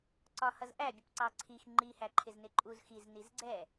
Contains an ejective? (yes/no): yes